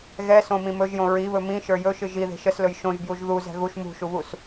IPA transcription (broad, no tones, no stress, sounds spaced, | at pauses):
ɣ ɛ s õ m ĩ m ɵ ʒ j õ ɹ i β ɵ m ĩ ʃ ə˞ j ɵ ʃ ɨ ʒ i ð e̤ ʃ ə s l ɵ j ʃ õ ʒ b j u ʒ ð u z ɛ̤ ɣ u ʃ m ṳ ʃ u β u s